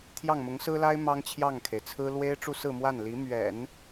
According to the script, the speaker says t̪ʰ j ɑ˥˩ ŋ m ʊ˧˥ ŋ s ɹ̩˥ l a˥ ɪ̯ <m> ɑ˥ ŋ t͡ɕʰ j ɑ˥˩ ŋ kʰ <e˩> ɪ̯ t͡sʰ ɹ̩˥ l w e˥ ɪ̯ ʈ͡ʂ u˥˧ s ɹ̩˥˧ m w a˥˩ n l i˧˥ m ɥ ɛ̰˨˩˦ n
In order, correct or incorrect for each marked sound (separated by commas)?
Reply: correct, correct